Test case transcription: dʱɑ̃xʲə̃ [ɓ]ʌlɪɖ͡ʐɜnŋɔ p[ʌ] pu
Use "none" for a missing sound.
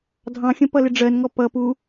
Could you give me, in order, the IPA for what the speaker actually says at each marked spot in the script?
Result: p, ʌ

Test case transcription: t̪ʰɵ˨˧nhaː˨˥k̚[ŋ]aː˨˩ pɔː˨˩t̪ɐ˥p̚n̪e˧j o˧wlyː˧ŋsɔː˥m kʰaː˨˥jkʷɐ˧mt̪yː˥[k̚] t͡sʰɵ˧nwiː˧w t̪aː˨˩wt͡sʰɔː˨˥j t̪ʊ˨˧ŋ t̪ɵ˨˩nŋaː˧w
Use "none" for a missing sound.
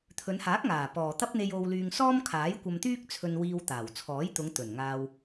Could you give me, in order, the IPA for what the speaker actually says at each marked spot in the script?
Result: ŋ, k̚

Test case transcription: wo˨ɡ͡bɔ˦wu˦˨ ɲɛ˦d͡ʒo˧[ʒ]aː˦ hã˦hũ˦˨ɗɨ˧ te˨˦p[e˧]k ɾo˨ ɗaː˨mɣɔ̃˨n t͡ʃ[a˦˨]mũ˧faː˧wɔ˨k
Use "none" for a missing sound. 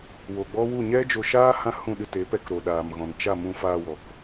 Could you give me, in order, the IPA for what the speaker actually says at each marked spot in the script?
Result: ʃ, ɛ˧, a˦˨

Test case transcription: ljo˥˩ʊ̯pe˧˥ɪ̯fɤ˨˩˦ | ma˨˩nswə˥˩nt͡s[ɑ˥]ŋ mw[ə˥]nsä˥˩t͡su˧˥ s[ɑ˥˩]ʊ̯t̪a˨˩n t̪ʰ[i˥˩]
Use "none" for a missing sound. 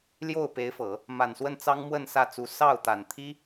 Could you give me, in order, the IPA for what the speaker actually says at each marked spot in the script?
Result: ɑ˥, ə˥˧, ɑ˥˩, i˥

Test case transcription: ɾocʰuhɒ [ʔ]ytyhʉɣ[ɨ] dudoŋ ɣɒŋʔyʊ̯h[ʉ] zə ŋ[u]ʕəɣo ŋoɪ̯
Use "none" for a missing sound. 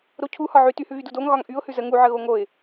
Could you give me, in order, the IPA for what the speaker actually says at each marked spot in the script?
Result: ʕ, y, ʉ, u

